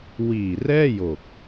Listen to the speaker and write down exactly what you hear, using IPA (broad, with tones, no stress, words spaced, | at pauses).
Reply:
wiː˨˩rɛː˥˩jo˨˩k̚